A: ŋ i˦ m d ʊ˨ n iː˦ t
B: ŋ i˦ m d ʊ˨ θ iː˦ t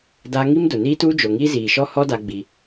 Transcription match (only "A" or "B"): A